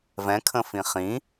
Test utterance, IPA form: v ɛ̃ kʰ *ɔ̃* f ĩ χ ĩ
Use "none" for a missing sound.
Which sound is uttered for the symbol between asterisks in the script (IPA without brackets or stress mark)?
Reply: ə̃